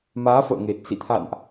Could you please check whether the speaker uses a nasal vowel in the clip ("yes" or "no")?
no